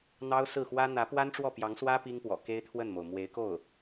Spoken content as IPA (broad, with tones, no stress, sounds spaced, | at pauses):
n̪ ɑ˥ ʊ̯ s ɹ̩˥˩ x w ä˥ n̪ ä˧˥ p w a˥ n ʈ͡ʂ w ɔ˥˩ p j ɑ˧˥ ŋ s w ä˥ p i˥ ŋ p w ɔ̰˨˩ k e˥ ɪ̯ t̪ʰ w ə˥˩ n m o˩ ʊ̯ m w e˧˥ ɪ̯ k o˥˩ ʊ̯